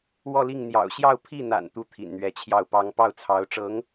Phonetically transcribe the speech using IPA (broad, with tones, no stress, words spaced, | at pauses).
wɔ˥˧li˥˩ŋ n̪jɑ̰˨˩ʊ̯ɕjɑ˥˧ʊ̯ pʰi˥˩n̪a̰˨˩n t̪u˥˩t̪ʰḭ˨˩nn̪ɥɛ˧˥t͡ɕʰjɑ˥˩ʊ̯ pɑ˥ŋ pɑ˥˩ʊ̯t͡sʰɑ˧˥ʊ̯ʈ͡ʂɤ˧˥ŋ